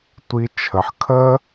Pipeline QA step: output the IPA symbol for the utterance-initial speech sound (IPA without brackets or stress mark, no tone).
tʷ